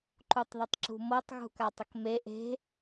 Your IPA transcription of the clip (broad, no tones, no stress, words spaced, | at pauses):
ǃutˤðətˤǁṳmɤtˤ ɣṳkatˤəkme ʔe̤